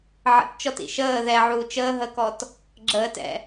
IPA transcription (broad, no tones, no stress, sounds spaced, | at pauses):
ʕ ə̰ t t͡ʃ ɔ t ḭ ʃ əː ð ɛ ʕ uː t͡ʃ əː ɦ ə k ɔ t | ɡ͡ǁ əː t ɛ̰